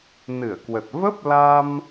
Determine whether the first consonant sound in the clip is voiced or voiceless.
voiced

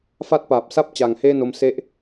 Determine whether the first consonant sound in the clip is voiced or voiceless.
voiceless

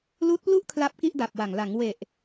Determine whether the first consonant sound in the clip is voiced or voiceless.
voiced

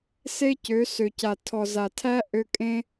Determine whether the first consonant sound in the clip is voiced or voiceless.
voiceless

